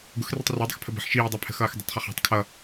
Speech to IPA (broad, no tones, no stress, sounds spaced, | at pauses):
ɡ ʊ x r i tˤ r a dˤ ɪ x pʰ ə b ə̤ ħ ʃ iː dˤ a pʰ ə̤ x ʌː x dˤ ə̤ tˤ χ ə χ a̤ tˤ kʰ ʌ